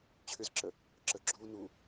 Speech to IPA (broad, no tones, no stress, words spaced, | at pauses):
t͡ɕʰʏzǁə | ǁəɡ͡ǁuː nu